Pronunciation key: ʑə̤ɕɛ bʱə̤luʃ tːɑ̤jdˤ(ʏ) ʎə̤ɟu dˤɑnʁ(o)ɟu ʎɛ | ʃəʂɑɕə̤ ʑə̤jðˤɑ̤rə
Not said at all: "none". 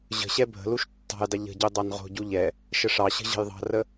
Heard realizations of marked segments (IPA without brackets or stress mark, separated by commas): ə, o̤